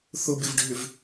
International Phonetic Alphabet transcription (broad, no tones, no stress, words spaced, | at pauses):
θʊbɪvɖʱʏv